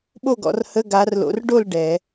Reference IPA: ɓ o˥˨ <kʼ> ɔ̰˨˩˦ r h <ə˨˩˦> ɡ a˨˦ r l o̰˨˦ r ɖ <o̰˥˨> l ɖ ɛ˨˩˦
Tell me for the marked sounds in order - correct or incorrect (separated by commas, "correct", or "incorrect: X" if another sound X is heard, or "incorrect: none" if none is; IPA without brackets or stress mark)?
incorrect: ɡ, incorrect: ə˧˥˧, incorrect: o˥˨